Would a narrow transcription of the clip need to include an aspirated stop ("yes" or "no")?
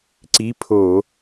yes